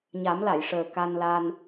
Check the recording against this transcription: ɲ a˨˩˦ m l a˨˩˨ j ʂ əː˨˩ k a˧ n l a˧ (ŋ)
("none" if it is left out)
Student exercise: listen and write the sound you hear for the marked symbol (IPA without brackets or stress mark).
n